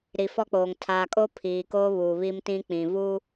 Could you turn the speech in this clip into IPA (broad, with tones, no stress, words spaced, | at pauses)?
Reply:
ɾi˨fɔ˦k͡poː˨ŋ tʰaː˨kʼo˦ pʰiː˨koː˦βuː˨ βi˦mtĩ˦k͡pĩ˨vuː˦